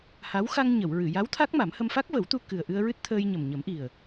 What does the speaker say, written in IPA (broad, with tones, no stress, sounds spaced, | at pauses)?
h a˧˥ w x a˧ ŋ ɲ ə˨˩˨ w ɹ ɨ˨˩˨ j a˧˥ w t̪ʰ a˦˥ k̚ m a˨˩˦ m h ə˧ m f a˦˥ k̚ v ə˨˩˦ w t̪ u˧ k ɨ˨˩ ə̯ ʔ ɨ˧ ə̯ ɹ ɨ˦˥ t̚ t̪ʰ əː˧ j ɲ ə˨˩ m ɲ ə˨˩˦ m ʔ i˨˩ ə̯